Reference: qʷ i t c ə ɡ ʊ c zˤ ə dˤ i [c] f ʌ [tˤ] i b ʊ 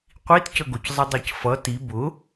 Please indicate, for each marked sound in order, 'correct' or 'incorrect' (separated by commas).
correct, incorrect